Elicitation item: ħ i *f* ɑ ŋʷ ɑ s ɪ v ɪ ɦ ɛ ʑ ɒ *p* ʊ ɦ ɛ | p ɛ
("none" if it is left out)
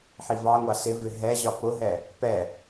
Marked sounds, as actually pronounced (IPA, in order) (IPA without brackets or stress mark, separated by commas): v, p